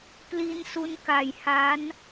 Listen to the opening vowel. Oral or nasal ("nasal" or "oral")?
oral